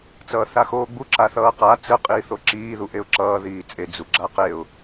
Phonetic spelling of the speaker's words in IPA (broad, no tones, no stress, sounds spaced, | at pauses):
t͡s ʌː θ a x oː ɡ͡b u ǁ a θ ʌː q a t͡s ə qʼ iː θ o ǁ iː ð u ʔ e ʊ̯ ǁ ʌː ð iː t͡sʼ e d͡z u ɡ͡ǁ a q e ʊ̯